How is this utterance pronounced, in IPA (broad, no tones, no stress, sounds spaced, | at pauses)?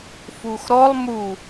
f u x ɾ ɔ lˠ m u